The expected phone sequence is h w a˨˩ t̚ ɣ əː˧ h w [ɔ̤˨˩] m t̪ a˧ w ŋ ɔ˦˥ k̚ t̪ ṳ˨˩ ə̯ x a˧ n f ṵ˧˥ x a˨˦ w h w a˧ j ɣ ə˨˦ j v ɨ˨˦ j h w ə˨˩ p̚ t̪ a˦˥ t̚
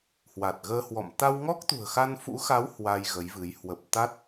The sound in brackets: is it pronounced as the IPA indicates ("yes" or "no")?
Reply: no